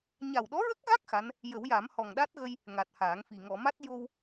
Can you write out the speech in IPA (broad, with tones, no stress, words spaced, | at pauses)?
ɲa˨˩wɗɔ˧˥ɹə˦˥k̚ɣa˦˥k̚ xa˧˥n | jə˨˩˦wja˨˩˦m hɔ˨˩ŋɗa˦˥t̚ɣə˧j | ŋa˨˩t̚haː˨˩˦ŋfi˨˩ ŋɔ˨˩˨ma˦˥t̚ jo˧w